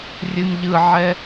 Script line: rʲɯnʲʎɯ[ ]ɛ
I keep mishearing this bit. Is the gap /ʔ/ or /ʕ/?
ʕ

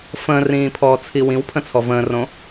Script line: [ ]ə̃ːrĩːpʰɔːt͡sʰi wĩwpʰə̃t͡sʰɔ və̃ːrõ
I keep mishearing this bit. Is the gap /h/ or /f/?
f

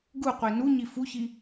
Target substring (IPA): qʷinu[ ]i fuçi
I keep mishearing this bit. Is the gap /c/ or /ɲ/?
ɲ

